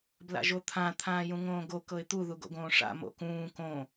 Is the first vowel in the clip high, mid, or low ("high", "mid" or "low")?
low